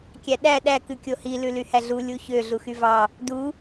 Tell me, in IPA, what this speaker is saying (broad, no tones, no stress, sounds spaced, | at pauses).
kʲ æ ɗ æ ɗ æ k ʉ kʲ o h i l ʉ l y h æ ɮ u lʲ u ç ø ɮ u x y v ɑ | d u